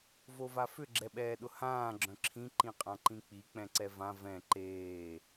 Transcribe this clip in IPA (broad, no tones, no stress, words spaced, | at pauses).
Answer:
vovafʏ ɡ͡ǁɛɓɛːɗʊhãː ɡ͡ǁœ̃ǁʰĩ ǃĩqʼãǃĩk͡pi k͡pɛ̃ǀɛvã vɛ̃ ǃeː